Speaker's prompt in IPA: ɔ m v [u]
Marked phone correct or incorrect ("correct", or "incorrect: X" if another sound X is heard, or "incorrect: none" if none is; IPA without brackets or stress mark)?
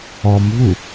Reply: correct